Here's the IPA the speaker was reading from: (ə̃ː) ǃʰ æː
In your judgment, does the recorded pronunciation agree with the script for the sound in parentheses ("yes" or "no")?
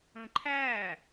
yes